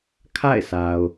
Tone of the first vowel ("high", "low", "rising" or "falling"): falling